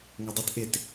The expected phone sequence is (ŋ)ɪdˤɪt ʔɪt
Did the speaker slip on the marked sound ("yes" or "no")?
no